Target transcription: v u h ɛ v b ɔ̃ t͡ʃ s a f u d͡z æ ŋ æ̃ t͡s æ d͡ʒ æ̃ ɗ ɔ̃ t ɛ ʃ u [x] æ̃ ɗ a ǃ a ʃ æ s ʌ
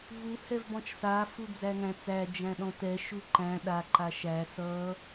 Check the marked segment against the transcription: incorrect: ǃ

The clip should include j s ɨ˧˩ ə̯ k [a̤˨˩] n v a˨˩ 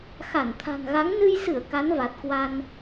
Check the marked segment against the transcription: incorrect: a˨˦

